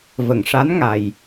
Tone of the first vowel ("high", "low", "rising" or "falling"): low